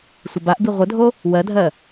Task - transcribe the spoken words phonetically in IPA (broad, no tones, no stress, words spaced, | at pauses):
sʷəbaʔbi ʁʷədʱo | wɜdʱɜ